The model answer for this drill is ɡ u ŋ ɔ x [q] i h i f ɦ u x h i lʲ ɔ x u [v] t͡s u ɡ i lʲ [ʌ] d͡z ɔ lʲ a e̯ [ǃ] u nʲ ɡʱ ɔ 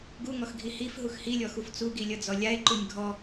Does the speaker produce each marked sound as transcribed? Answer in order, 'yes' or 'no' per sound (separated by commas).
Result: no, no, yes, yes